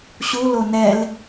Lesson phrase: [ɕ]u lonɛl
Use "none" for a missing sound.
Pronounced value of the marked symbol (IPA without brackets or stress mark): ɕ